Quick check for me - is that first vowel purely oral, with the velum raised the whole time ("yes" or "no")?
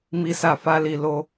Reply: yes